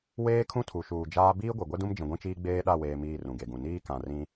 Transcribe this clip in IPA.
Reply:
weː˦kʰũ˦tʰu˨ʃuː˨ d͡ʒaː˦ biː˦ɡʷe˨ɡʷɛ˦dũ˦m d͡ʒĩ˨ɡʷĩ˦t͡ʃiː˦ ɡ͡beː˦ɗa˦˨weː˨ miː˦˨rũ˨ɡe˨ɡũ˨ niː˦ kã˨rĩ˦

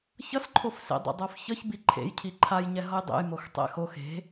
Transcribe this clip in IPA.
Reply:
çʌsǃʰof sḛdˤɛ̰dˤofçʌç biǃʰḛj cʰiǃʰajɲɛ ɦʌjdˤḛjmox tˤɛ̰xox e̤

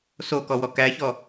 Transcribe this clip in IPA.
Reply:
sokɔwɔ kæçɔ

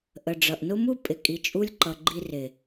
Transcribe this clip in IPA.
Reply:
ʔə˨ɖ͡ʐʌ˨ʔnʊ˦mu˦ pʼɪ˨kʼi˨t͡ʃʼu˧lʲǃʌ˨ ɡ͡ǃi˧rɪ˨

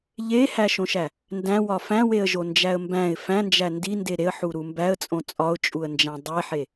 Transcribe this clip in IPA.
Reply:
ʎehæʃõʃæ | ndæ̃wɒ fæ̃weə̯ʒond͡ʒæə̯ mbæ̃ɪ̯ fæ̃nd͡ʒæ ndinde ɾeə̯ħuɾu mbæə̯t͡sʼõ t͡sʼɒʊ̯t͡ʃʼuə̯nd͡ʒæ̃ dˤeħe

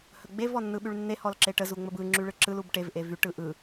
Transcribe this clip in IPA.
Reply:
həɡ͡bev ɔnːɯɓyɭnːe hɔlǁeʈə zuŋ͡məbɯ ŋ͡ǁyɭɯǁɯl ubʈev ʔevyʈ ɯʔɯ

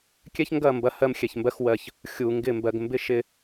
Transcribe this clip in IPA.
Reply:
kʲɛ˦çŋɡɐ˦˨ mbɐ˦hɜ˦m xʲɛ˨çmbɜ˦xwɜ˦˨ç | xʲu˨ŋɡɪ˦˨ mbɜ˨ɡmbɪ˦ʃɪ˦˨

